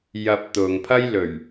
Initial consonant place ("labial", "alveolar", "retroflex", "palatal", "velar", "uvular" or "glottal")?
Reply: palatal